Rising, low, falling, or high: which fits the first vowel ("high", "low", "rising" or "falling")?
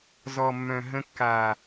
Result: low